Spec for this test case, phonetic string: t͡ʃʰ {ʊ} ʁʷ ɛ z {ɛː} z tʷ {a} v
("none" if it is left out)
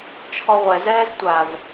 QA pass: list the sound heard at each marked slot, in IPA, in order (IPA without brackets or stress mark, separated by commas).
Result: ɔ, ɛː, a